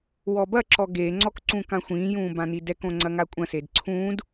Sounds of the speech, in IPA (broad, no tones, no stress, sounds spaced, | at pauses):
w ɔ b ɐ ǁ ɔ ɡ e ŋ͡ǀ ɔ k ǀ ũ k ã xʷ ĩː j ũː b ã n i d ɛ k õ ŋ͡ǀ ɐ ŋ a kʷʼ ɐ̃ s e d ǀʰ ũː d